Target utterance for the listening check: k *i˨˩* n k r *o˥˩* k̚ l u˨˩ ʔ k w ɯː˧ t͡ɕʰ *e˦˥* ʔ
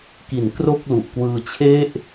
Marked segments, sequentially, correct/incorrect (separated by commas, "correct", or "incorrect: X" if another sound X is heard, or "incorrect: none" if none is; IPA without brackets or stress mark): incorrect: i˩˦, correct, incorrect: e˥˩